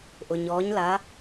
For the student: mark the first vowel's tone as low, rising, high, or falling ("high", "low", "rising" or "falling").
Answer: low